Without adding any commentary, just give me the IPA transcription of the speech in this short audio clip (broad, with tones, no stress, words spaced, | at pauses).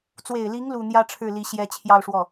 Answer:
t͡swe˨˩ɪ̯li˧˥ŋ lu˥˩ n̪jä˥ʈ͡ʂʰɻ̩˥˩li˧˥ ɕjɛ˥ t͡ɕʰjɑ˥˧ʊ̯ʂwɔ˥˩